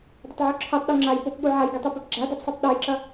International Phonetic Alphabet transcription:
dˤ ɵ tˤ ʕ u ǁʰ i tˤ ɗ u ŋ͡ǁ a j p o p ɠ u ʕ a j ɡ i tˤ ʉ p ɵ p ɡ͡ǁ a d a p sˤ ʉ tˤ ɗ o j ǁ ɐ

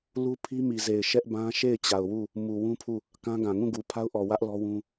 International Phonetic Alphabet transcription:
l u˦ pʰ i˦ m i˨ z e˨ ɪ̯ ʃ ɛ˦ ʔ b ã˦ ʃ e˦˨ ɪ̯ t͡ɕ a˨ ʊ̯ w u˦˨ | m u˨ w ũ˦ pʰ u˦˨ | k ã˦ ɡ ã˨ ŋ ũ˦˨ ɡ u˨ pʰ a˦ ʊ̯ ʔ ɔ˨ w ä˦ ʔ l ɔ˦ w ũ˦

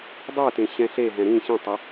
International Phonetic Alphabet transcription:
dˤ ə˞ t ẽ ɕ ɛ̃ ɬ e ɦ ɛ̃ ɾ ĩ ɕ ĩ tˤ ɛ

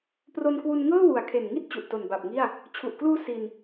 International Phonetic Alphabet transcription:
p r o˧ n k w u˧ n ŋ ɤː˥˩ w u˨˩ a̯ kʰ e˨˩ n ŋ i˦˥ t̚ t͡ɕ u˨˩ ʔ t o˨˩ n b a˨˩ p̚ ŋ i˥˩ a̯ | t͡ɕʰ u˨˩ ʔ k l uː˦˥ s i˧ n

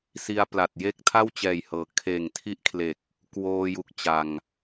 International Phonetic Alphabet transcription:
s i˧ a̯ p l a˨˩ t̚ j e˥˩ k̚ tʰ a˥˩ w t͡ɕ ɛː˨˩ j h ɤː˩˦ kʰ eː˨˩ ŋ tʰ i˦˥ ʔ kʰ l e˨˩ k̚ | k w oː˧ j u˨˩ k̚ t͡ɕ a˨˩ ŋ

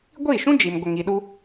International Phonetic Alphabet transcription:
ɡʷ iː˦˨ ʃ ũ˦ d͡ʒ i˨ m ɡʷ ə˨ ŋ i˨ ɗ u˦

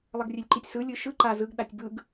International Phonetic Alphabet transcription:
lˠ ʌ ɡ rʲ e lʲ ǃ i tʲ s ɯ lʲ ɯ ʃ ɯ ǃ a z ɯ ɡ ɗ a tʲ b ɯ ɡ

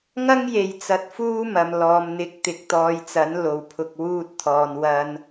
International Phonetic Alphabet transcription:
ŋ ɐ˥ ŋ j e˨ j t͡s ɐ˧ t̚ f uː˥ m ɐ˨ m l ɔː˨˧ m n̪ ɪ˨˥ k̚ t̪ ɪ˨ k̚ t̪ ɔː˧ j t͡s ɐ˨˥ n l o˨ w pʰ ʊ˨ k̚ w uː˧ t̚ t̪ʰ ɔː˨ n w ɐ˧ n

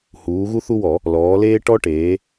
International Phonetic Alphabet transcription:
h uː˩˧ ɣ u˦ θ u˦ w ɔ˧˩˧ | l ɔː˩˧ l eː˦ ʈ ɔ˦ ʈ eː˩˧

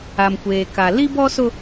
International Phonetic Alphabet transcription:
a˨ m kʷ eː˨ k a˨ l i˦ b ɔ˦ s ʊ˦

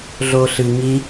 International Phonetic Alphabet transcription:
ɮ o ɬ ɨ ŋ i

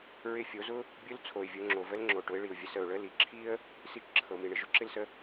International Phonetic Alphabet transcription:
ɹ ɪ˧ fʲ o˩˧ z ʊ˥ | bʲ ʊ˧˥ l t͡sʰ o˩ ɪ̯ vʲ o˩˧ ŋ͡ǁ o˩ v ə˧˥ l ŋ͡ǁ o˩ ʈ ʊ˩˧ ɪ̯ ɭ i˩ ʊ̯ vʲ ə˩˧ s ə˩ ʊ̯ ɭ ə˧˥ l i˩˧ ǁʰ i˥ ə̯ | s i˧ t͡ʃ ǁʰ ɤ˩ m i˩ ɳ ɪ˩ ʒ ʊ˥ ǁ ɪ˥ l s ə˧˥

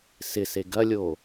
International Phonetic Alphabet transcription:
s ɪ s e ɡ ɐ lʲ o

